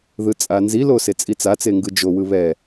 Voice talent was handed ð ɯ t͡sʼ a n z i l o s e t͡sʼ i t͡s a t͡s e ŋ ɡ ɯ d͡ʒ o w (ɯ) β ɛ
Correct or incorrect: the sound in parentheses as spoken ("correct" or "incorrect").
correct